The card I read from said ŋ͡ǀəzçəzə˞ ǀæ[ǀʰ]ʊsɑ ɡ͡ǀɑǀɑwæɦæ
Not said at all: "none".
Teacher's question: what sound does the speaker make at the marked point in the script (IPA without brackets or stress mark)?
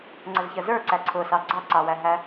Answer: ǀʰ